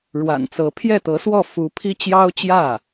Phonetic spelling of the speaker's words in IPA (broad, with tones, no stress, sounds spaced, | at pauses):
ɻ w a̰˨˩ n t͡s ɤ˧˥ pʰ j ɛ˥˩ t̪ ɤ˧˥ s w ɔ˥˩ f u˧˥ pʰ i˥ t͡ɕ j ɑ˥ ʊ̯ t͡ɕ j ä˥˩